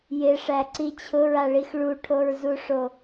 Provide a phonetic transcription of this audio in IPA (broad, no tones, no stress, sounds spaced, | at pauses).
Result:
j ɪ ʂ æ ǀ i t͡ɕʰ ʊ ɹ a ɭ i x ɭ u ʈʰ o ɹ z u ʂ o